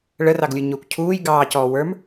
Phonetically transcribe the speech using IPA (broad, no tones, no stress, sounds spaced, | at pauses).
ɭ ə r ɑ ɡ lʲ u ɲ ʊː kʷ cʰ uː j ɡ ɑː c ɔː w ə˞ m